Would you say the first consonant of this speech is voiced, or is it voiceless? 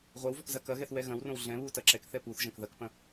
voiced